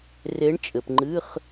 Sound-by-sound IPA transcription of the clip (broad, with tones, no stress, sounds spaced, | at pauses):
r e˧˥ ɳ t͡ʃʼ ɘ˨ p ŋ͡ǃ ɨ˧˥˧ χ